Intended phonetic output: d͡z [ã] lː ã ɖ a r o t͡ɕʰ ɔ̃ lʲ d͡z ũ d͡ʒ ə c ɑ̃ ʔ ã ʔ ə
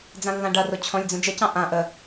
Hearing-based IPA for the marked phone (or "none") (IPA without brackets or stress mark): ã